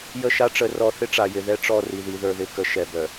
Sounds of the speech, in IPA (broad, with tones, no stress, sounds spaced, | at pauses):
j ə˦˨ ʃ a˦ ʈ͡ʂ ə˨˦ r ɔ˨ θ ɪ˦ ʈ͡ʂ a˨ j ɪ˨ ð ɛ˦ ʈ͡ʂ ɔ˦˨ r i˨ ð i˨ ð ə˞˨ ð ɪ˨ k ə˨ ʃ ɛ˨ b œ˨